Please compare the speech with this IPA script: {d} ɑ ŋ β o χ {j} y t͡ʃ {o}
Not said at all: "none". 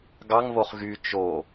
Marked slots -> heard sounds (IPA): ɡ, ɣ, o

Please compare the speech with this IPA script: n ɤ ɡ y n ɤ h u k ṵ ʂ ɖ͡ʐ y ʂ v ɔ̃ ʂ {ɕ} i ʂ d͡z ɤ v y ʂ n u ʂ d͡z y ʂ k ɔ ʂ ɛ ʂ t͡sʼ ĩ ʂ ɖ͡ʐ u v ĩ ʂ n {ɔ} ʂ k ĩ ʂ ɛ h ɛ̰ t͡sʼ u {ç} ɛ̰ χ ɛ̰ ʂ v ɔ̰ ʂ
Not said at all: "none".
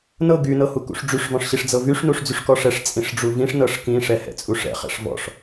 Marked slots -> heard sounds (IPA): ɕ, ɤ, ʂ

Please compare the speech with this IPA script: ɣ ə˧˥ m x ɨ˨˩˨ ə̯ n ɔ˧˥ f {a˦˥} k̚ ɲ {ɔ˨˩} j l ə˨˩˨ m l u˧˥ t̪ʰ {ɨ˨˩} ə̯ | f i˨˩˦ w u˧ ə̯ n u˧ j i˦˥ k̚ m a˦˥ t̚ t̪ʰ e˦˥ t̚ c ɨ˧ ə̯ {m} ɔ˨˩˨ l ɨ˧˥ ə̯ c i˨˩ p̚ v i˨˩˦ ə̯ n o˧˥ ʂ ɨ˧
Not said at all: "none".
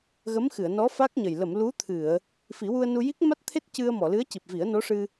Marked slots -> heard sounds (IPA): a˦˥, ə˨˩, ɨ˨˩˨, m

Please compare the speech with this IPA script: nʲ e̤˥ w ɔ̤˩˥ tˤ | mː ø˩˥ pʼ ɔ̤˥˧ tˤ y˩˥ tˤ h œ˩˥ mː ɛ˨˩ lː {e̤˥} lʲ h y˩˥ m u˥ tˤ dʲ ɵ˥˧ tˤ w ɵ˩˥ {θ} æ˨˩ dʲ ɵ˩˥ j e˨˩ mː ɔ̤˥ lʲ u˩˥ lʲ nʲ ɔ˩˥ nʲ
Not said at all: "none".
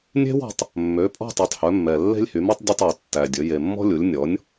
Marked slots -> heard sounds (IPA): e̤˥, tː

